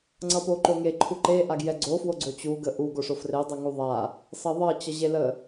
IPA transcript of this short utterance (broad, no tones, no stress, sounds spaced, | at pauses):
ŋ͡ǀ ʌ p o ǃ o ŋ e ǃʰ u ǃ e ʔ a ɡ j ɛ ɡ͡ǀ o f w o ɡ͡ǀ o t͡ɕ u ɡ ə ʔ u ɡ o ʂ o f r e dˤ ʌ ŋ u ðˤ a | s ʌ ðˤ ʌ t͡ɕ ʌ ʑ e l ə